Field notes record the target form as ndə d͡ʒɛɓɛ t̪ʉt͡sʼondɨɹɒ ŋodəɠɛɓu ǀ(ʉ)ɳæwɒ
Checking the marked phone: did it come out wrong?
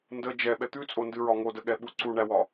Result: yes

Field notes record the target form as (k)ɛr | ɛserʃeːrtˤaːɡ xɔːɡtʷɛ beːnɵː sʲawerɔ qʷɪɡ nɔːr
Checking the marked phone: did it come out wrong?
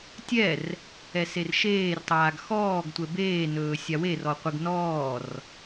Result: yes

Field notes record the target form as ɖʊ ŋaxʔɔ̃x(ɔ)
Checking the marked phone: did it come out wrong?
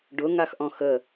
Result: yes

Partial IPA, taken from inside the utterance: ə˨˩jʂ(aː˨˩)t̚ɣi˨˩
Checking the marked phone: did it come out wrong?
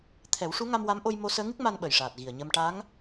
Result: no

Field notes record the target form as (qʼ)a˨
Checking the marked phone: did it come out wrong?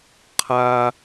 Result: yes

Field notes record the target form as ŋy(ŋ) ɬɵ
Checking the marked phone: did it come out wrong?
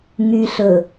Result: yes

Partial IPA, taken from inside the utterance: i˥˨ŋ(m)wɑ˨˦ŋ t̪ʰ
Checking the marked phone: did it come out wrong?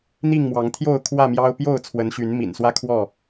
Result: no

